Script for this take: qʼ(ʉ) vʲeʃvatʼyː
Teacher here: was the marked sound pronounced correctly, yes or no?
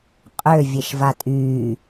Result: no